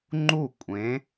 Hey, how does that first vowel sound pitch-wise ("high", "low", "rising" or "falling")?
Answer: falling